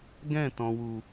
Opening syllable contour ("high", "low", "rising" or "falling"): falling